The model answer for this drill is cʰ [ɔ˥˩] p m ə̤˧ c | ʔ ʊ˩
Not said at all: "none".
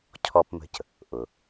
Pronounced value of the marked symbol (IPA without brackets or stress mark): ɔ˧